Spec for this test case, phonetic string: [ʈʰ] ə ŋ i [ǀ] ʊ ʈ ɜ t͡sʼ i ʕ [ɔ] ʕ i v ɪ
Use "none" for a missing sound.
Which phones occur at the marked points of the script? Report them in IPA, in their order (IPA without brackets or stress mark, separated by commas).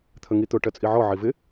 t̪ʰ, t̪, ɔ